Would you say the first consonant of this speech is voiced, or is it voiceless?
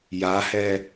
voiced